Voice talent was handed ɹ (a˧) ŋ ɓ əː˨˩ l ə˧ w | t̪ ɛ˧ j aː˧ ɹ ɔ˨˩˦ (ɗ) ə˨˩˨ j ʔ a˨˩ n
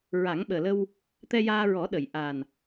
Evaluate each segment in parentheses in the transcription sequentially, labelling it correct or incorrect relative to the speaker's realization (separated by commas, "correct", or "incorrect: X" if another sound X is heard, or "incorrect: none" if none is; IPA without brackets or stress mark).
incorrect: a˨˩˦, correct